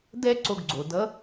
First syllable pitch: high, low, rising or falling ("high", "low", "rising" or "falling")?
high